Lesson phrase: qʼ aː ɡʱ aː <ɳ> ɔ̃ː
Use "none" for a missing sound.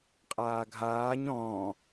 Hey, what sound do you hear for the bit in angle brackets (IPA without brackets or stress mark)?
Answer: ɲ